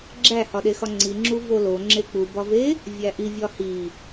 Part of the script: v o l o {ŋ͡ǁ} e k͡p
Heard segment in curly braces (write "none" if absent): ŋ͡ǁ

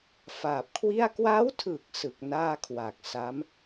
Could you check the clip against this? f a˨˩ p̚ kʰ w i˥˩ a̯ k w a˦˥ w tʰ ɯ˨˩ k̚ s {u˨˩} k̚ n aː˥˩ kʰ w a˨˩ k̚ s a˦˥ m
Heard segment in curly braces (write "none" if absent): ɯ˨˩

